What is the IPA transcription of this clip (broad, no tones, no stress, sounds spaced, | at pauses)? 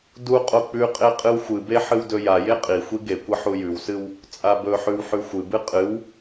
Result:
d u qʼ o k͡p ʉ qʼ e qʼ ɨ w xʷ ɨ b e ħ ɨ w d ɵ j a j e qʼ i xʷ i ɡ e kʷ ɐ ħ u j ʉ w s ɨ w | t͡sʼ a b ɵ ħ ʉ w ħ ʉ xʷ ɨ b ɨ qʼ ɨ w